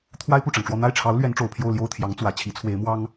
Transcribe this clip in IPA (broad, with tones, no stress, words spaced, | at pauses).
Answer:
t̪ʰwa˥ɪ̯pu˥˩ʈ͡ʂɑ˩ŋʈ͡ʂwɔ˥˧ n̪a˥˩ɪ̯ʈ͡ʂʰɑ˧˥ʊ̯ lɥɛ˧˥nʈ͡ʂo˨˩ʊ̯pʰjo˥˧ʊ̯ ljo˥˩ʊ̯t̪ʰjɑ˧˥ŋ t͡swä˨˩ t͡ɕʰi˧˥t͡sʰwe˧˥ɪ̯mwɑ˥ŋ